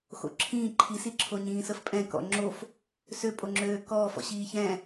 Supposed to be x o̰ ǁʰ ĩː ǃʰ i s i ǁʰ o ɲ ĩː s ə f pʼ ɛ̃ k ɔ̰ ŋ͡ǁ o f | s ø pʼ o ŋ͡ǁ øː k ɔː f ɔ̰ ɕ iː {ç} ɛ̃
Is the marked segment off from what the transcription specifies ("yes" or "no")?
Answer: no